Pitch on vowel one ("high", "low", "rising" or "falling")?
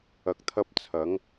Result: rising